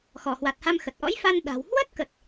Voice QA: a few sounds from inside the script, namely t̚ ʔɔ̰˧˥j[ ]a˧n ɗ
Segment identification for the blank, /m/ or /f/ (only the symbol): f